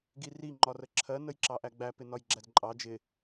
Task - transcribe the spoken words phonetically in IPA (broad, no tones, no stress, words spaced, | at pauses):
ɡiri ŋ͡ǃɒrəǁʰɜ nəjǁɑʔæɡ͡bæ pɪnɒjɡ͡ǁædǃʼɑ d͡ʒɪ